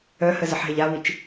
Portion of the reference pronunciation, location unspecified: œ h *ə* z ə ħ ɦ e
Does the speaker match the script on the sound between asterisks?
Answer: yes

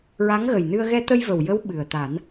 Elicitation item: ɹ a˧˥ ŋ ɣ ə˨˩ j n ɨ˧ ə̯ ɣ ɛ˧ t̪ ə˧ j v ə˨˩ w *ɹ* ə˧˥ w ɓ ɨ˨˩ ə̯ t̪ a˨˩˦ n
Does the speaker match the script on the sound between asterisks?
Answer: no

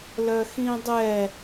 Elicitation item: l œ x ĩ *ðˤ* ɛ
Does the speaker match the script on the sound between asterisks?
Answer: no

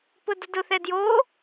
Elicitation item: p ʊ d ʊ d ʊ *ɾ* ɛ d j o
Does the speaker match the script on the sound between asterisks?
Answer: no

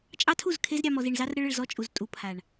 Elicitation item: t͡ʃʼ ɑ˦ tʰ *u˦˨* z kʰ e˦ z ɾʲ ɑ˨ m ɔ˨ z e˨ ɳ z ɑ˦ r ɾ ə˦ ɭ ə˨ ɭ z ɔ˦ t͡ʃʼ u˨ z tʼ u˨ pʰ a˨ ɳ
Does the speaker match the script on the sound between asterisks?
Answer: yes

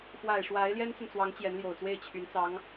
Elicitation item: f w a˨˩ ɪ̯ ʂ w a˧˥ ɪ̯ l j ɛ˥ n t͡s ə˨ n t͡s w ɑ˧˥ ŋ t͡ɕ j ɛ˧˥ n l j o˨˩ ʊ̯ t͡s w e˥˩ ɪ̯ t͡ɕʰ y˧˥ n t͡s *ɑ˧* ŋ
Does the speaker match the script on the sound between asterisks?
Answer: no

